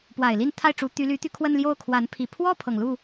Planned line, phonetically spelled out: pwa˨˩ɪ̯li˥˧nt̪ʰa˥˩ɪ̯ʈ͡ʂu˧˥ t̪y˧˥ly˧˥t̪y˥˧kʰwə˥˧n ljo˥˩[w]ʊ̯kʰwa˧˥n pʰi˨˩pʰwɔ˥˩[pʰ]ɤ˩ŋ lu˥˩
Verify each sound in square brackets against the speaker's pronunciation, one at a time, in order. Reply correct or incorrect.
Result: incorrect, correct

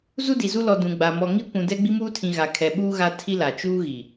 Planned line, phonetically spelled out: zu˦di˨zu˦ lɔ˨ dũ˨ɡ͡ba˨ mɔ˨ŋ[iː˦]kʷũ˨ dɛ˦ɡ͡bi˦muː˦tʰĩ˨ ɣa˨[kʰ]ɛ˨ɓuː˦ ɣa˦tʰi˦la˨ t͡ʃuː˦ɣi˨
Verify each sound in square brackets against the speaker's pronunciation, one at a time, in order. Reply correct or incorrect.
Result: incorrect, correct

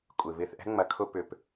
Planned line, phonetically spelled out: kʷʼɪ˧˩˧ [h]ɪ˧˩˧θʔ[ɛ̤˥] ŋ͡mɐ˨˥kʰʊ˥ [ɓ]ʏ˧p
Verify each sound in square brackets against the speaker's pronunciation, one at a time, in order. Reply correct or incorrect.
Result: incorrect, correct, incorrect

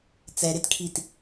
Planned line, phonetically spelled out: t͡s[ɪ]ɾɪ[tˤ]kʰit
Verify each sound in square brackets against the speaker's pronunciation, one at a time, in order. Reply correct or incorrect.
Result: incorrect, incorrect

